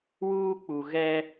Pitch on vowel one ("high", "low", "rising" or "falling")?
high